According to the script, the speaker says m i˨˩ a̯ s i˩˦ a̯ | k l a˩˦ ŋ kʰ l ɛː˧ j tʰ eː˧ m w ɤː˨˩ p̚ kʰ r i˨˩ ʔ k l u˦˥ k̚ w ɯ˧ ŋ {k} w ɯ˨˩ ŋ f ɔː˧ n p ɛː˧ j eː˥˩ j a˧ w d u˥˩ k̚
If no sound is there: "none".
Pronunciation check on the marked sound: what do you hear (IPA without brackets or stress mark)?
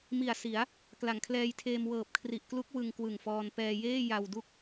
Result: k